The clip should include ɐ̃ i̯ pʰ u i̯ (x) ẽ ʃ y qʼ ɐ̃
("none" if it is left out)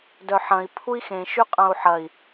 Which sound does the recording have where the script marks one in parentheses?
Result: x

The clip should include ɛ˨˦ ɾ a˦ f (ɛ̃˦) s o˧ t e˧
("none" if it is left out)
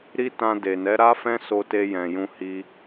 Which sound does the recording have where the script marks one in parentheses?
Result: ɛ̃˦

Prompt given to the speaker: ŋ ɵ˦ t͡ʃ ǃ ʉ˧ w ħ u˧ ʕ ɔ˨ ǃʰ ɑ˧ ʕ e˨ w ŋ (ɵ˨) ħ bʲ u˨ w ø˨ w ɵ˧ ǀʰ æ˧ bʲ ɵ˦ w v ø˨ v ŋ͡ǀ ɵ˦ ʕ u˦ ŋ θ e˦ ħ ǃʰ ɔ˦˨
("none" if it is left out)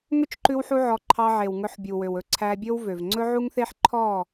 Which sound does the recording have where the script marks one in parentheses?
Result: ɵ˧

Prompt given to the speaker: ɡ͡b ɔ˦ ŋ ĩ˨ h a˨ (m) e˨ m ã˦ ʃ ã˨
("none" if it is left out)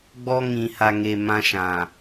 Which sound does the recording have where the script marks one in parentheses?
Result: ŋ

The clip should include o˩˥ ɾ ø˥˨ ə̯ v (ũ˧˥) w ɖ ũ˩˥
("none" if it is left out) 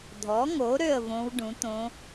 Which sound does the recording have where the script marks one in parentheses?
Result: õ˧˥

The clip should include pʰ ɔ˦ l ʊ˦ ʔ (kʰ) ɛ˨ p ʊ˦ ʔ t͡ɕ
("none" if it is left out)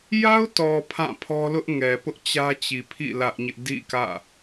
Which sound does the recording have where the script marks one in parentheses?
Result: ŋ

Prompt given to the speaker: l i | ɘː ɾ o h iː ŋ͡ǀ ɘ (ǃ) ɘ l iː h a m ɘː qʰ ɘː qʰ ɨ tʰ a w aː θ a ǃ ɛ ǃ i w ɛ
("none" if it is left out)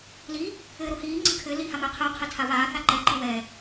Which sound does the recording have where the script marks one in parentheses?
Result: kʰ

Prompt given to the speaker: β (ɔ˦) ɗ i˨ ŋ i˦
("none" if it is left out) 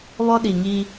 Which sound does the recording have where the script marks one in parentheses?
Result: ɔ˦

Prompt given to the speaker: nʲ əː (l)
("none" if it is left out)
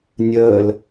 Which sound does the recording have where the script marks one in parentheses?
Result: l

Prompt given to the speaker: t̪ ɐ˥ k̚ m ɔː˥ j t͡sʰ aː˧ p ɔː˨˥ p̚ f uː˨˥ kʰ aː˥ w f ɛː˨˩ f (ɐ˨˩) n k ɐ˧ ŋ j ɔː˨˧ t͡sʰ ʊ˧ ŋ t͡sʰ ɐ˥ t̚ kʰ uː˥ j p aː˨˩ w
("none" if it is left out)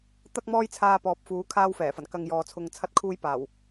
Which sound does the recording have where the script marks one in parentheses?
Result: ɐ˨˩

